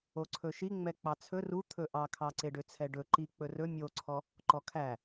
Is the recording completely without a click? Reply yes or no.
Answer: no